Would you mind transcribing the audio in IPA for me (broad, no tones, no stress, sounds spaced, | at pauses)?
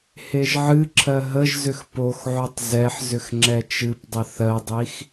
h e ʒ ʕ ɨ ǁʰ ɜ ɦ ə ʒ z ʏ x p o x ʕ o tˤ z ɛ ħ z ʏ x ŋ͡ǁ ɛ t͡ʃ ɨ p dˤ ə θ ɜ dˤ i x